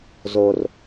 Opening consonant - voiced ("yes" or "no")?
yes